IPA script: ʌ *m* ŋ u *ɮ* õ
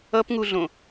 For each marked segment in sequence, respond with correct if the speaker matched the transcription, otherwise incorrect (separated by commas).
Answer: incorrect, correct